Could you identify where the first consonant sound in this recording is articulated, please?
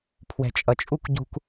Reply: labial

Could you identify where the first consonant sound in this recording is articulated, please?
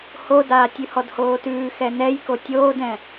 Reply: glottal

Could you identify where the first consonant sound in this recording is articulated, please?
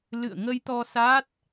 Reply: alveolar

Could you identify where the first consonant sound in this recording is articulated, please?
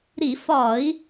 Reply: alveolar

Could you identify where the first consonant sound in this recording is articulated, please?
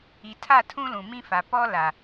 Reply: alveolar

